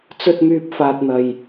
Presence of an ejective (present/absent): absent